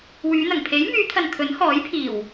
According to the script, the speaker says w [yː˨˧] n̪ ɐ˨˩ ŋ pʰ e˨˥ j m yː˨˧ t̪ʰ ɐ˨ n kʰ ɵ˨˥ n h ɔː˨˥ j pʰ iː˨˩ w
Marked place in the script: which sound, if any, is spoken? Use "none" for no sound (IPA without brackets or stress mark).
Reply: yː˨˧